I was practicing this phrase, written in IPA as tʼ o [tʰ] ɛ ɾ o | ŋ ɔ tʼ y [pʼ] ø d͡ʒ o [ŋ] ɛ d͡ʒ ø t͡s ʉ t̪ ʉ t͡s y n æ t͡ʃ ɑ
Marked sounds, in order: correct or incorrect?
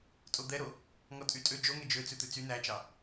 incorrect: d̪, incorrect: tʼ, correct

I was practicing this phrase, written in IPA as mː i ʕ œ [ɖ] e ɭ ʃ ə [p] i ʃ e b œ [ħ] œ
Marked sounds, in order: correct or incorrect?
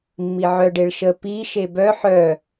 correct, correct, correct

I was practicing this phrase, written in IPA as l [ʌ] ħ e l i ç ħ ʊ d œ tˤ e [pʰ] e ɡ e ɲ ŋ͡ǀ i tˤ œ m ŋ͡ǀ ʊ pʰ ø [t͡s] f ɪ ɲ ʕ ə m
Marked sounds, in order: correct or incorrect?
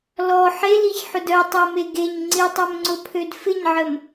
incorrect: ɔ, incorrect: m, incorrect: d

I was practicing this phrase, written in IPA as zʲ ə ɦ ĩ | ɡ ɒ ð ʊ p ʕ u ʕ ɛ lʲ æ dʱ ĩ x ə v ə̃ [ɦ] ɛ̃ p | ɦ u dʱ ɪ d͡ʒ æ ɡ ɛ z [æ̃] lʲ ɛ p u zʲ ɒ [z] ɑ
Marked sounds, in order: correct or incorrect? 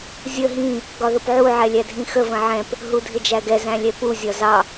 incorrect: ʕ, correct, correct

